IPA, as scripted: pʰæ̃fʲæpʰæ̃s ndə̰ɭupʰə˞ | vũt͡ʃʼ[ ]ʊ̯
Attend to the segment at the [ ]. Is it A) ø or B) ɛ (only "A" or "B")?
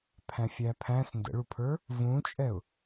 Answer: B